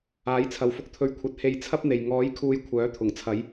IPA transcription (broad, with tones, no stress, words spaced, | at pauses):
aː˨˥jt͡sʰɐ˨w fʊ˨k̚t̪ʰɵ˨ɥkʷʰɐ˨˥t̚ he˧jt͡sʰɐ˥p̚n̪e˨j ŋɔː˨˥j kʰuː˨j kʷʰœː˨˥t̪ʰʊ˨˩ŋt͡sʰɐ˨˧j